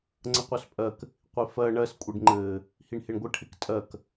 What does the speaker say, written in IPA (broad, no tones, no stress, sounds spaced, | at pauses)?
ŋ͡ǀ ə qʷ œ s pʼ ɜ k | qʷ i f ɜ ɳ ɜ s kʷʼ e ɖ ŋ͡ǃ ɘː | h i ɳ h e ɳ ɡʷ ɘ ʈʰ ɪ k tʼ ɜ k